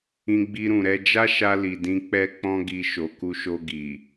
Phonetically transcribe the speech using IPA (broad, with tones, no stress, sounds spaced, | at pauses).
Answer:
ĩ˧ ɡ͡b i˧ ɾ ũ˨ ɾ ɛ˧ d͡ʒ a˦ ʃ a˧ l i˨ d ĩ˧ k͡p ɛ˦ k͡p ɔ̃˦ ɡ i˧ ʃ o˨ k u˧ ʃ o˧ ɡ i˨